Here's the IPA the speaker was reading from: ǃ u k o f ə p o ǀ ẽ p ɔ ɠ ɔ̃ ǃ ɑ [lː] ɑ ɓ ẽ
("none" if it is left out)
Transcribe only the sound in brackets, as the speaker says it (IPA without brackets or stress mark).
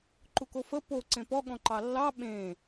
lː